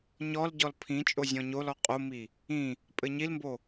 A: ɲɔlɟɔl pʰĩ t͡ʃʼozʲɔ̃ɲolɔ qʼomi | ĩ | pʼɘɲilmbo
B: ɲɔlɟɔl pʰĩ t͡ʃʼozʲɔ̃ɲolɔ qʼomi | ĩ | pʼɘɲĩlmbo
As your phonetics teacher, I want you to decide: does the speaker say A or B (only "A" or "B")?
A